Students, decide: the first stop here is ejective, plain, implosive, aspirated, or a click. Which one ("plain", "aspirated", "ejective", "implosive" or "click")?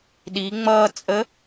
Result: implosive